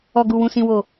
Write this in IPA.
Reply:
ɔ˨ɡu˨wũ˨sĩ˨ woː˨

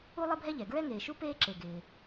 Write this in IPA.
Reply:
u˥lˠɪ˥bʱɛ˥ʎɛ˩ ɡɹɛ˥ŋeː˩ʃu˥ peː˥ǁe˩ ɡɪː˩

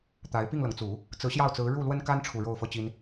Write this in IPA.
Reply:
t̪a˧˥ɪ̯ pi˥˩ŋlɤ˩ŋt͡su˨˩˦ | t͡sɹ̩˧˥ɕjɑ˥˩ʊ̯t͡sɹ̩˧˥ ɻu˥˩lwə˥nka˥n ʈ͡ʂʰu˥˧ ɻo˥˩ʊ̯fɤ˥t͡ɕi˥n

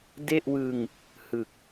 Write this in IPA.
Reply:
de˥˩ʔwɯ˧ŋ | hɯ˨˩k̚

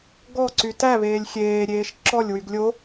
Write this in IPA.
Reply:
ɡɔǀy tæβeːlʲ xʲeːɾʲeːʃ ǁɔlʲwyɡ lʲo

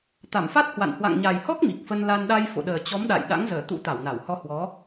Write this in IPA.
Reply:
t̪a˧˩mfa˦˥t̚hwa̰˧˨n hwa̰˧˨ŋɲa˨˩jhɔ˦˥k̚ mi˨˩k̚fə˧nla˧n ɗa˧jfo̰˧˨ɗəː˨˩ t͡ɕɔ˨˦mɗa̰˧˨j ɗa̰˧˥ŋzəː˧˩ t̪ṵ˧˥t̪a˧˩wna˧˩whɔ˧ hwɔ˨˦

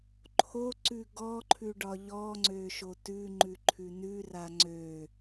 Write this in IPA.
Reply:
ǃʰoǀʉ ɡɔǃʰʉɖɒ ʎɔŋ͡ǀøʃo tʉŋ͡ǃʉǃʰʉ nʉra ŋ͡ǀø

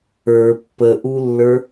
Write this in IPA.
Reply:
ə˞ pːəʔulːə˞

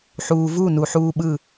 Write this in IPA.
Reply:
ħuː˧vuː˥˨nu˧ ħuː˧ɓɯ˧˩

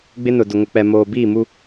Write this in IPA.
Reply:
ɡ͡bɪ˦nʊ˨ dʊ˨ŋʊ˨k͡pɛ˨ moː˨biː˦˨mu˦

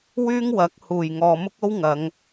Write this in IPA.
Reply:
wyː˥ŋwɐ˨˥k̚huː˨˩j ŋɔː˨mʊ˥k̚o˥w ŋɐ˨˧ŋ

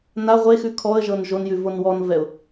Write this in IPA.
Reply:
na ʁʷexʉ kʰɔə̯ʒɤn ʒonjʉ vonwɔnvɛʊ̯

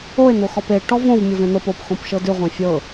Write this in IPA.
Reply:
oe̯n̪oxɔp e ʈɔvõv mʲɤvẽn̪ɤp opxõp ʃɤdʉʁʷẽ fʲɤ

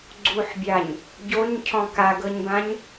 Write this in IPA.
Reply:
ɡ͡ǀuħbʲaɲ | ɟoɲcʰɔ̃ kaɡɤɲbãɲ

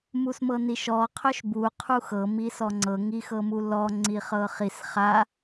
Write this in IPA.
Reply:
musmɤniʃɔ qʰœʃbu qʰuxɤ misɔŋ͡ǀɤ ŋixɤmulɔ ŋ͡ǀiχɤχis χa

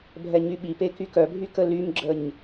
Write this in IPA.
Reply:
bʱɛɲyɓipe kykœbʱy kəlymɡ͡ǁəɲ

